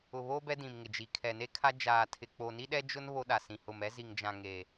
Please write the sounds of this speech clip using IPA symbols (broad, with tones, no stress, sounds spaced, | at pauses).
ʊ˨ β o˦ b ɛ˦ d ĩ˨ m ŋ ɪ˨ d͡ʒ i˨ kʰ ɛ˨ n e˦ kʰ a˦ d͡ʒ aː˨ tʰ ɪ˨ k͡p o˨ n i˦ ɗ ɛ˦ d͡ʒ ʊ˦ n β o˦ ɗ a˨ s ĩ˨ h ʊ˨ m ɛ˦ z i˨ ŋ d͡ʒ ã˨ ŋ e˨